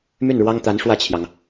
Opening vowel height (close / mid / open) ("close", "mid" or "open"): close